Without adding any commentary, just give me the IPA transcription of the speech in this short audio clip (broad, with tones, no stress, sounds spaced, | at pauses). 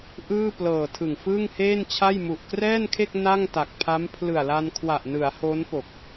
ʔ ɯː˥˩ p l ɤː˨˩ tʰ ɯ˨˩ ŋ f ɯː˥˩ ŋ h eː˥˩ n t͡ɕʰ a˥˩ j m u˨˩ ʔ k r ɛː˥˩ n kʰ e˥˩ k̚ n a˥˩ ŋ t a˨˩ k̚ pʰ a˦˥ m pʰ l ɯ˨˩ a̯ l a˧ n kʰ w a˨˩ ʔ n ɯ˩˦ a̯ h o˦˥ n p o˨˩ k̚